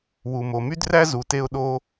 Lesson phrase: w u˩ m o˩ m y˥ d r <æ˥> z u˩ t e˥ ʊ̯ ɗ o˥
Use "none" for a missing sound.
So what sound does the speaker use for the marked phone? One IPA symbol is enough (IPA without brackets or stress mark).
æ˥